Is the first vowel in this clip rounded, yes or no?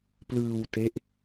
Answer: no